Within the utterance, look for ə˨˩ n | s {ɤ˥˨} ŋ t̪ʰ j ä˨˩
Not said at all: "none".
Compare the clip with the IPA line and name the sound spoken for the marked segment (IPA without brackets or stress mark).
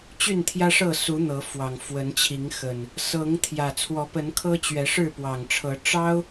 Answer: ɤ˨˦